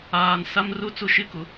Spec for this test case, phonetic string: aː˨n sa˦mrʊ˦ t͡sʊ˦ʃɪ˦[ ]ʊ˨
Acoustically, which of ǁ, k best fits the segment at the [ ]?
k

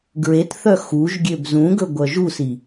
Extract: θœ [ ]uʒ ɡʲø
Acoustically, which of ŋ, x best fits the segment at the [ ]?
x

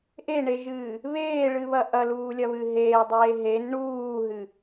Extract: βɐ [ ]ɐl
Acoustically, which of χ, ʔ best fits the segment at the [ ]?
ʔ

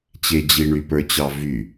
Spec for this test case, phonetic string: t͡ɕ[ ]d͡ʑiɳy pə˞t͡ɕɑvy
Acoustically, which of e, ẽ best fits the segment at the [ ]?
e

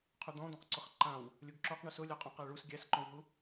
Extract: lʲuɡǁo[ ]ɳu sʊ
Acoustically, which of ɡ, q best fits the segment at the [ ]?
q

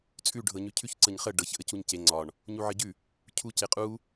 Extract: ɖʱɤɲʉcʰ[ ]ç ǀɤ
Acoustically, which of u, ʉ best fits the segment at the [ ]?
ʉ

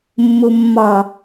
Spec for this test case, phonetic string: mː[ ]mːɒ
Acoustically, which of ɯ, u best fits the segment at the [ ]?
u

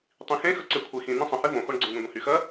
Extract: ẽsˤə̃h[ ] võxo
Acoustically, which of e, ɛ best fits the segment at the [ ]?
e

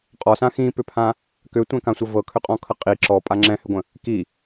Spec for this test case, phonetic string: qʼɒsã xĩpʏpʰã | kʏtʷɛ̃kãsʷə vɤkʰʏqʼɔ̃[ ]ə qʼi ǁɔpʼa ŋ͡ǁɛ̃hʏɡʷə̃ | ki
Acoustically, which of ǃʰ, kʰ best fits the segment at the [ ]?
kʰ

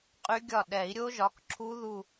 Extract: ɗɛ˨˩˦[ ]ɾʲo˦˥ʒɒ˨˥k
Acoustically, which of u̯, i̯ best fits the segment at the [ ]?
i̯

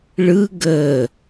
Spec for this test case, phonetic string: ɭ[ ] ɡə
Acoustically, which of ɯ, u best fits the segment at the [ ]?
ɯ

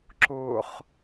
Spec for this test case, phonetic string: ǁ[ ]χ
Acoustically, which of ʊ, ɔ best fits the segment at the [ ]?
ʊ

